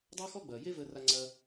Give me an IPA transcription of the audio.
dˤ ɐː˦ x ɔ˦ ɡ͡b ɐː˨ j e˦ v əː˧ r a˧ ŋ͡ǀ ɐː˧

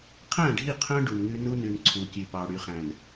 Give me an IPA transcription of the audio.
qʰ æ̃˦˨ ɖʱ i˦˨ qʰ œ̃˦ ɖ u˨ n ŋ ʉ˦ n u˦ n ʉ˨ n ǀʰ u˨ kʲ ʉ˨ p ɑ˨ ɽ y˨ χ æ̃˨ n

